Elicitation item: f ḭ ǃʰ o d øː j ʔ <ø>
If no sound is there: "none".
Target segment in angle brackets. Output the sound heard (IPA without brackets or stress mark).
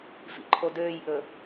ɵ